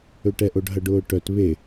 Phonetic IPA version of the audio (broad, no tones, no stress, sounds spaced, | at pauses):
ø ʈ ɛ ʔ o ɖ ɦ ɐ ɖ ʊː ʈ œ t β e